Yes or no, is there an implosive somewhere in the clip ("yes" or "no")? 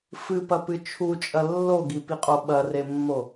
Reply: yes